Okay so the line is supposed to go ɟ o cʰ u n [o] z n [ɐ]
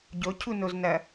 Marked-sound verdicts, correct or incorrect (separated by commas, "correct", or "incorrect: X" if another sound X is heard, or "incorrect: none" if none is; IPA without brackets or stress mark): correct, correct